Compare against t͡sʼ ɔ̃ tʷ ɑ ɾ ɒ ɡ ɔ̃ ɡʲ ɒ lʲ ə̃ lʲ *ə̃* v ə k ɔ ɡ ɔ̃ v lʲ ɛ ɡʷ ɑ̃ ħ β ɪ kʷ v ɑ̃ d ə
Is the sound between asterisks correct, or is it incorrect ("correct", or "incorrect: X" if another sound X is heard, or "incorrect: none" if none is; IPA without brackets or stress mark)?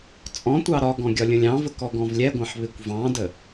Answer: incorrect: ɑ̃